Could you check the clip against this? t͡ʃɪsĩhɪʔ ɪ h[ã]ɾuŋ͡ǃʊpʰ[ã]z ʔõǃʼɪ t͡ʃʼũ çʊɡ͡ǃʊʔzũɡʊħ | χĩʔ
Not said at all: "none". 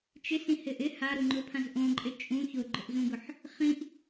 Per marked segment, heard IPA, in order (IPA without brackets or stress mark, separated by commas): a, ã